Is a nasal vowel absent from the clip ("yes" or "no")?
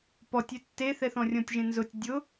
no